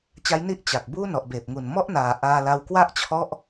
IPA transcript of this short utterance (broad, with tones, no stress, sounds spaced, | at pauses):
t͡ɕ a˦˥ j n i˥˩ ʔ t͡ɕ a˨˩ k̚ b uː˥˩ n ɔ˨˩ ʔ b eː˨˩ p̚ ŋ u˨˩ n m ɔ˥˩ ʔ n aː˨˩ ʔ aː˧ l a˧ w k w a˥˩ ʔ t͡ɕʰ ɔ˥˩ ʔ